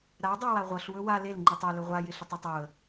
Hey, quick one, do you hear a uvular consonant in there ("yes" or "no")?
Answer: yes